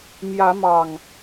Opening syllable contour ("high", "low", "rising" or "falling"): rising